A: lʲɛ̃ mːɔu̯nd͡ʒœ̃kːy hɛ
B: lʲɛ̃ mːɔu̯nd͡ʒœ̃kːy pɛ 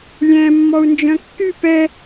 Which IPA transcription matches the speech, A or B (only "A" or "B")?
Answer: B